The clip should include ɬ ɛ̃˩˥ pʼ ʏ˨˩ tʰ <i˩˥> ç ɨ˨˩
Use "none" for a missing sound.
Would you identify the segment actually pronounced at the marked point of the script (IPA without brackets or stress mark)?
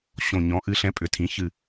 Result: ĩ˩˥